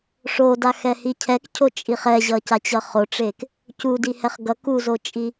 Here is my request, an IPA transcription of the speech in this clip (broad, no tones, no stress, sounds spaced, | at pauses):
ʂ o d a x ɛ h i cʰ ɛ k cʰ o t͡ʃʼ i χ ɛ ʑ ʌ c a t͡ɕ ʌ χ o ʈ͡ʂ e k | c u d i h ɛ χ ɡ ʌ k u z o t͡ʃʼ i